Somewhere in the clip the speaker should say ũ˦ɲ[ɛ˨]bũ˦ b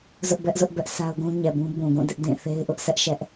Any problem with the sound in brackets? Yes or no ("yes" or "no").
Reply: no